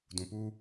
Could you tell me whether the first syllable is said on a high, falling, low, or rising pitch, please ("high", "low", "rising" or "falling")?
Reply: low